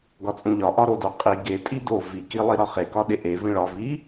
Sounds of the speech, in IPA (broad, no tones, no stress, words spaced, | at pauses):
ɡɒt͡sʼũʎɒ ʔɒɾodo qʼi ɡe tʼido viki lˠiɾɒχekɒ ɗeʔe vĩɭɒ vi